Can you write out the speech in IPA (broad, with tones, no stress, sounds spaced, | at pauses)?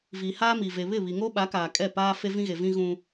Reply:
v i˨ h aː˦ m i˨ v e˨ β ɪ˦˨ β i˨ ŋ o˦ ɓ a˨˦ k aː˨ kʼ ɛ˦˨ p aː˦ f e˦ v ĩ˦ ɣ e˨ v ĩ˦ ɣ ũ˦